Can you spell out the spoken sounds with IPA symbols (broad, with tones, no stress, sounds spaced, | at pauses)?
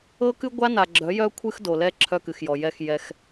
ɤ˦ k ɨ˦ ɡʷ a˦ n a˨ ɡ͡ǁ œ˨˦ j œ˦ kʷʰ ɨ˦ x d o˨ l ɛ˦ ǁʰ œ˦ k ɨ˨ x j ɔ˨ j ɛ˦˨ x j ɛ˦ x